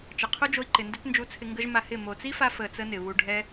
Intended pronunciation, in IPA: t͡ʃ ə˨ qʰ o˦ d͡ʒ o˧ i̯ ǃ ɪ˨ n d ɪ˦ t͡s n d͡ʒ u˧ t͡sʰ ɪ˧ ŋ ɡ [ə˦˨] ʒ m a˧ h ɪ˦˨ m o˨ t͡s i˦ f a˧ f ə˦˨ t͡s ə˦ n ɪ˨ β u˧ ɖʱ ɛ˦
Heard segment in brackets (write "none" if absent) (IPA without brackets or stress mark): ə˦